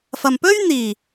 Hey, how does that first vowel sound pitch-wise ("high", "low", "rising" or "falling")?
low